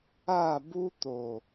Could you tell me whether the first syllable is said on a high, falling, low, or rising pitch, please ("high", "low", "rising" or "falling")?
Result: falling